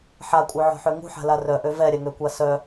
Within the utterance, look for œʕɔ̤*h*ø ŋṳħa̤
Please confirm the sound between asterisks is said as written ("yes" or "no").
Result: no